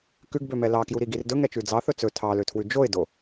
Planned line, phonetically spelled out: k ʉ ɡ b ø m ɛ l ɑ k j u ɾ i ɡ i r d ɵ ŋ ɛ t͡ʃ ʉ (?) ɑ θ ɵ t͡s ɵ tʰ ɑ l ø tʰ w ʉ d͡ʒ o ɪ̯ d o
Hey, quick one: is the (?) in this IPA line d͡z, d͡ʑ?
d͡z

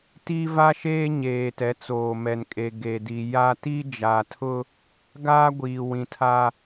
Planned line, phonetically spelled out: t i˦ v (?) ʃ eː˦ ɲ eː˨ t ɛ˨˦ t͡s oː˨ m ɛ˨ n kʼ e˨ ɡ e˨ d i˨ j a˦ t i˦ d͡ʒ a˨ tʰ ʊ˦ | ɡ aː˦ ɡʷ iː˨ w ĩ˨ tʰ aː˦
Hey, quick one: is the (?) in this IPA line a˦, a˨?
a˦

